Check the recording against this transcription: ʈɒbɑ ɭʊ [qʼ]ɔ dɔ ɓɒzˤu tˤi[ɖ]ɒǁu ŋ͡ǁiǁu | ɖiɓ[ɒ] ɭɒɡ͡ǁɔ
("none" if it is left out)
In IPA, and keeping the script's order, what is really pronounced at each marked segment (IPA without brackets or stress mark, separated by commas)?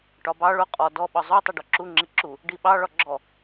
qʼ, ɖ, ɑ